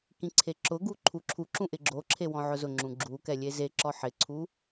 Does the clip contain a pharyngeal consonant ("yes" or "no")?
yes